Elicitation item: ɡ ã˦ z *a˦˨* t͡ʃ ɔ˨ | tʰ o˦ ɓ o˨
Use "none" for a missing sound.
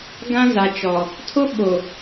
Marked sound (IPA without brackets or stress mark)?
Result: a˨